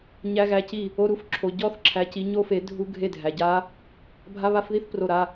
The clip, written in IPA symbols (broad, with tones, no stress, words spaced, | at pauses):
ɲæ˦˥ɣæ˧˥˧ci˥˩ | o˧˥˧ɾu˦˥f ǁʰo˨ɟɔ˦˥θǁʰæ˨˦ci˨˦ ɲo˦˥fe˨˦ dʱu˦˥ɡʱe˥˩dʱæ˨ɟa˦˥ | bʱa˧˥˧βa˧˥˧fði˦˥θ pro˥˩ɾa˧˥˧